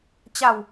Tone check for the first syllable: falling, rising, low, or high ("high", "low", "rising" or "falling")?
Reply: low